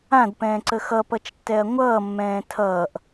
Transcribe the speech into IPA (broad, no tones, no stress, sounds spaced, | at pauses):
ã d p ɛ̃ː ǀ ə x ʌ p ʌ t͡ʃ tː ɛ ɐ̯ ŋʷ ʌː mː ɛ̃ː tʰ ʌː ʔ